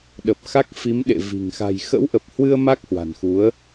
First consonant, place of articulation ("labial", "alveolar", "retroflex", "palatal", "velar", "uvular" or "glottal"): alveolar